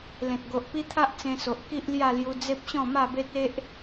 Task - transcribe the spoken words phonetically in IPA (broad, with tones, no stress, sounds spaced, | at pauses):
l ẽ˨ t̚ ɡ o˨ ʔ p i˦ t̪ʰ a˦ ʔ t͡s ẽ˧ s o˨ ʔ k i˦ ʔ l j a˥˧ l j u˧ d͡z e˦ p̚ ɕ ɔ̃˥˧ m a˥˧ b e˦ t̚ e˦ ʔ